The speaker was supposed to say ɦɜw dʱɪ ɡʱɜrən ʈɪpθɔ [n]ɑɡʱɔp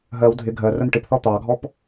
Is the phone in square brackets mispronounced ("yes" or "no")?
yes